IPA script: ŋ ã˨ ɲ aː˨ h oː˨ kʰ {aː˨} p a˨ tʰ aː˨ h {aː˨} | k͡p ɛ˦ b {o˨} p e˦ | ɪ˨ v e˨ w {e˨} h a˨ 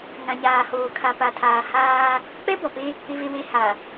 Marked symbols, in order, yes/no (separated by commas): no, no, no, yes